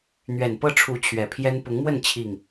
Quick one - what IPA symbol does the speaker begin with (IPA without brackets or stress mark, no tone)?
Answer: n̪